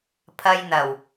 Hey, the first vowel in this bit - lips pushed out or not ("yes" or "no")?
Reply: no